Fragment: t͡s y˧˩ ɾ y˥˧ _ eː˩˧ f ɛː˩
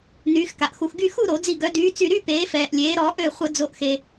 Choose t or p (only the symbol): p